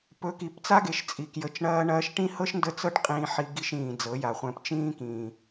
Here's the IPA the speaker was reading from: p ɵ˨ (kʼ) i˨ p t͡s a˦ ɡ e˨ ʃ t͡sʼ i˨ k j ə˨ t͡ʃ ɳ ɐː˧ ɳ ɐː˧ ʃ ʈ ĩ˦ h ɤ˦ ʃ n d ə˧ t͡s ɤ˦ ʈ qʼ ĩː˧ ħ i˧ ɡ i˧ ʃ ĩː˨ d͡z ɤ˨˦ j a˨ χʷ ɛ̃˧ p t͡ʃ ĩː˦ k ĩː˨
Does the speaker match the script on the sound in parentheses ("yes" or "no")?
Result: no